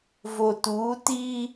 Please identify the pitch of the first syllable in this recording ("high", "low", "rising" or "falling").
low